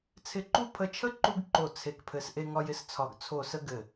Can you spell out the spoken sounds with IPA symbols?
t͡sʰ ɪ˦˨ ǃ u˥ pʰ ə˦˨ t͡ʃʰ ə˥ ǃ u˥ ɡ ǃ o˦˨ t͡sʰ e˥ k pʰ ɘ˥ s ʔ e˥ ŋ ɒ˥ j ɪ˥ s t͡sʰ ɒ˦˨ ɡ t͡sʰ o˦˨ s ə˥ ɡ ɘ˦˨

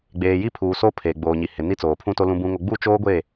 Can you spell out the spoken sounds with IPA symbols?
ɡ͡b eː˨ j i˦˨ pʰ uː˨ s o˦ pʰ eː˨ ɡ͡b oː˨ ɲ i˨ h ɪ˨ n i˦ t͡s oː˨ pʰ ũ˦ t o˦ l ũ˦ b ũ˦ ŋ o˦ ɡ͡b u˦˨ t͡ʃ oː˦ ɡʷ e˦˨

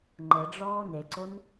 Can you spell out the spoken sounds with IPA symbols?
ŋ͡ǃ ə ɖ͡ʐ ɔː n e ǀ o n

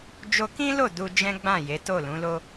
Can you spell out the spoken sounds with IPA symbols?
d͡ʒ o˧ k ĩ˦ l o˦˨ d u˧ d͡ʒ ɛ̃˦ ɡ͡b ã˦˨ j e˨˦ t o˦˨ l ũ˨˦ l o˦

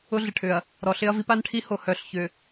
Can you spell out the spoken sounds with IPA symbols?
ʊ˦ ɮ ɪ˨ ʈʰ ʏ˨ ɐ̯ | ɾ ɔ˨ ɬ ɪ˦ ɐ̯ v i˦ p a˦ n ʈʰ i˦ h o˨ h œ˨ ɬ ç ʏ˨

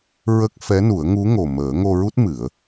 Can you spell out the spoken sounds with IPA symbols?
ɹ ə˦˥ k̚ f ɛ˧˥ n u˨˩˦ ə̯ ŋ u˧˥ ŋ o˨˩ m əː˨˩˦ ŋ o˧ ɹ u˦˥ t̚ m ɨ˨˩˦ ə̯

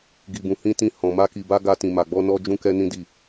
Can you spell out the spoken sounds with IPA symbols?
ɡ i˧ b ũ˧ h ĩ˦ t ĩ˦ h ɔ̃˧ m a˦ k i˧ b a˦ ɡ a˦ t ĩ˧ m a˧ ɡ͡b ɔ˦ n ɔ˦ d͡ʒ ũ˦ k ɛ˦ n ĩ˦ d i˦˨

